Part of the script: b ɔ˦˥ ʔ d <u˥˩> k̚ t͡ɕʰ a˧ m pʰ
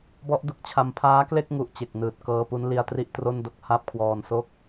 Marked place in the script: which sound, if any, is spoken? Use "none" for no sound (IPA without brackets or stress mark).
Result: u˦˥